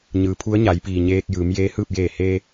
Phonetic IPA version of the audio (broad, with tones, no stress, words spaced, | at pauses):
ɲɯː˩˧pʰu˧˥ə̯ɲa˩˧jpiː˩ ɲeː˧k̚ jɯː˩˧mjeː˧˥hɯː˥˨p̚ jeː˧˩heː˧